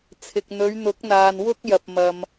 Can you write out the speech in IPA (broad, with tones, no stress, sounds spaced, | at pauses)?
t͡sʰ ɪ˨ k̚ n̪ ɵ˨˧ ɥ n̪ ʊ˨˥ k̚ n̪ aː˨ n w ʊ˥ k̚ j ɐ˨ p̚ m ɐ˨ m